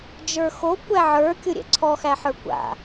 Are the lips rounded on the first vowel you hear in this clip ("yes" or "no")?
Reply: no